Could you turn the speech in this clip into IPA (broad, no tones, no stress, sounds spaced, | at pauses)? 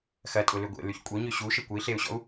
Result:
x ɐ tʼ ʊ l ʏ ɡʷ ḛ l y ç kʷʼ œ ɲ ø ɕ u ʃ ə kʷ ə i̯ ɬ e u̯ ɕ ɔ̰ u̯